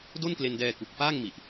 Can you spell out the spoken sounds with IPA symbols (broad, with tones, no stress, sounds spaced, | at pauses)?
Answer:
d o˥˩ n k l e˧ n d ɛː˧ k u˨˩ k̚ f aː˥˩ ŋ m i˨˩ ʔ